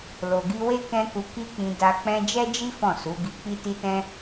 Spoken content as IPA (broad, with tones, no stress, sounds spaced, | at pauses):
l o˨ ɡ i˧ w e˦ k ɛ̃˦ k u˧ k i˦ k͡p ĩ˧ d a˧ k͡p ɛ̃˦ d͡ʒ ɛ˦ d͡ʒ i˦ f ɔ̃˦˨ s u˨˦ ɡ i˧ k͡p i˦ t i˦ t ɛ̃˦